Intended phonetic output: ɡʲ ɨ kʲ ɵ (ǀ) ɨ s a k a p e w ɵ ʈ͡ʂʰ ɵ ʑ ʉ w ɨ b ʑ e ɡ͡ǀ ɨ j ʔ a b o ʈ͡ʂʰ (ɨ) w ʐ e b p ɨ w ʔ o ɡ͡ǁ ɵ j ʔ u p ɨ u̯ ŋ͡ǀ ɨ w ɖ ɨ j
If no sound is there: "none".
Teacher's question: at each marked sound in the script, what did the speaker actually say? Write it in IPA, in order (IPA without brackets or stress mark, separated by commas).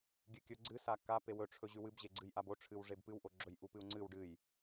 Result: ɡ͡ǀ, ɨ